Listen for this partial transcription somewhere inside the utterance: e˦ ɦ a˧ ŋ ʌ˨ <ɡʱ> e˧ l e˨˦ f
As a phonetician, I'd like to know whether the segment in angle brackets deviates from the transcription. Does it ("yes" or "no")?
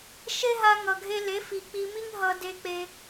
no